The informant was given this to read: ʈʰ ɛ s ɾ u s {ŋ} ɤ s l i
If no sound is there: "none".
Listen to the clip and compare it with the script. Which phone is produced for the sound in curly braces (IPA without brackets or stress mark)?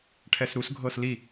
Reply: ɡʱ